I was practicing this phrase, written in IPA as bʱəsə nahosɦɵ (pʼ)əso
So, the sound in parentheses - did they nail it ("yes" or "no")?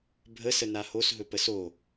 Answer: no